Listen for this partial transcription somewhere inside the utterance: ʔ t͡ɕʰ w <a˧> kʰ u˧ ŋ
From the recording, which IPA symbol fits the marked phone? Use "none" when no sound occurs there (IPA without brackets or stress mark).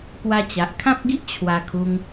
a˧